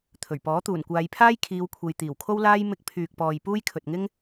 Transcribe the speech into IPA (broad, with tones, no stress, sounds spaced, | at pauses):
t̪ʰ ɵ˨˩ ɥ p ɔː˨˥ t̪ uː˨˩ n kʷ aː˨˧ j pʰ aː˥ j kʰ iː˨˧ w kʷʰ e˨ j t̪ iː˨˩ w kʰ o˥ w l aː˥ j m ɪ˧ k̚ pʰ yː˨ k̚ p ɔː˨ j p uː˥ j kʰ ɵ˨ t̚ ŋ ɪ˥ ŋ